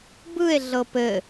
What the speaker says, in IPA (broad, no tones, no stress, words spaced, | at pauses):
bɯe̯ ɮɤpɘ